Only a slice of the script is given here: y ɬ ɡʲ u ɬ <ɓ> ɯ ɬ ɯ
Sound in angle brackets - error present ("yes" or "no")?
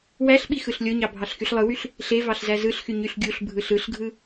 yes